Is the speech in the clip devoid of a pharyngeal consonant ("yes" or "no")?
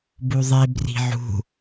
no